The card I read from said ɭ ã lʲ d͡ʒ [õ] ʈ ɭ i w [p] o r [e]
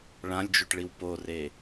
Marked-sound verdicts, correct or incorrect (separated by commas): incorrect, correct, correct